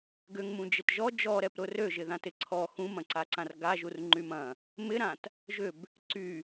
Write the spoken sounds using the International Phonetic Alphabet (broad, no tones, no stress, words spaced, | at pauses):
ɡʏŋmũ d͡ʒɪtʒɔ d͡ʒɔɾɛp ɾʊrø ʒɪðãtɪǀʰɔ xũmɐ̃ǀaǀãr ɡaʒur ŋ͡ǃymɐ̃ | mɪɾãt | ʒʏb | ǀy